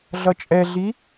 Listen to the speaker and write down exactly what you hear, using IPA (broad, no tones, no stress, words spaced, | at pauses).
ɮʌt͡ʃʼɛɮi